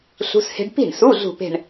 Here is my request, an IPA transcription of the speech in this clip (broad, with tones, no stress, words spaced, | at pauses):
ɬṳ˧˥˧she̤˦˥ɖ pi̤˥˩ɳsu˧˥˧ ɮṳ˥˧pe̤˥˧ɳ